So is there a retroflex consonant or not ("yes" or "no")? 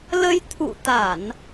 no